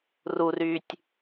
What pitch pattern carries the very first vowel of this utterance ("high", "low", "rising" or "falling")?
low